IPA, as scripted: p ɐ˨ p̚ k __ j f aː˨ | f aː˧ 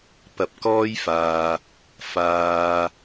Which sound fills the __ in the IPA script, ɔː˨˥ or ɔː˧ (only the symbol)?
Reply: ɔː˧